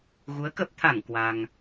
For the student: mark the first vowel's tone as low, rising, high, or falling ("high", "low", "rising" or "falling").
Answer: rising